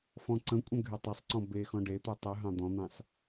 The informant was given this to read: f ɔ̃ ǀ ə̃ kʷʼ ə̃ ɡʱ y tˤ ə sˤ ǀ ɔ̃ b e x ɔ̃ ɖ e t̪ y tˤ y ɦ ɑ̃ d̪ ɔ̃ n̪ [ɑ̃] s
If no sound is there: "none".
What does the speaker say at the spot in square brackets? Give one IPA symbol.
ɑ̃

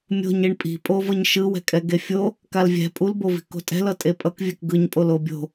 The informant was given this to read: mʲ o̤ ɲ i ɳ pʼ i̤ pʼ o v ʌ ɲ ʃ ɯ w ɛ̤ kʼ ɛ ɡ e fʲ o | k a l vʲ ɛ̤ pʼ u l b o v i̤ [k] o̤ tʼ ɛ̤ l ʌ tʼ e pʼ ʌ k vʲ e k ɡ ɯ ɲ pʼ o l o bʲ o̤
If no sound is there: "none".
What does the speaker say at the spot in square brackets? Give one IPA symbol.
k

